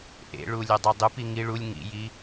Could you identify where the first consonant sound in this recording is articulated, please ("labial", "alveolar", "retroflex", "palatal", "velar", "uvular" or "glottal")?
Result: glottal